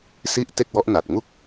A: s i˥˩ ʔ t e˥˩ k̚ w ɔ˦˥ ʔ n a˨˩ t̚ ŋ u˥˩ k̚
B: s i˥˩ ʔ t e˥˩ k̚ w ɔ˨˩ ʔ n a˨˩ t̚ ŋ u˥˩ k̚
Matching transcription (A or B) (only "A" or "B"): A